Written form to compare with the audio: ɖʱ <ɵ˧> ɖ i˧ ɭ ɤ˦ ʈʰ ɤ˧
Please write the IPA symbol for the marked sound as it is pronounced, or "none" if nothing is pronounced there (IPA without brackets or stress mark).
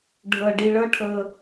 ɤ˧